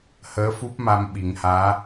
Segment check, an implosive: present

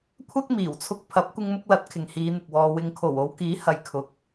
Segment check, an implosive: absent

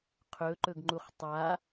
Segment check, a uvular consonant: present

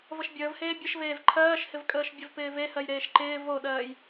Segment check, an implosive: present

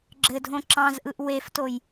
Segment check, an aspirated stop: absent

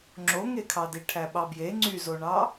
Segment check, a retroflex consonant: present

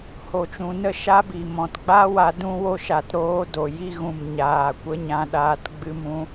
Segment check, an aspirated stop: absent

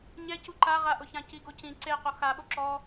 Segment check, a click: present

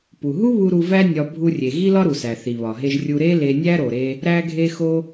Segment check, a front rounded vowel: absent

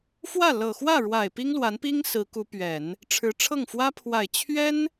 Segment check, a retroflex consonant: present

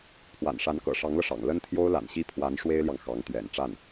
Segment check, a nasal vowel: absent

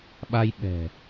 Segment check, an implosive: present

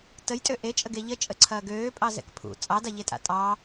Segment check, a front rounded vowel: present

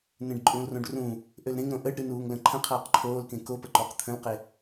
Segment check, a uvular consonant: present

